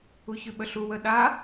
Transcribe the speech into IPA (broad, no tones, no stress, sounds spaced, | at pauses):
u ç ʉ ɓ ə ɬ u w ə ɗ a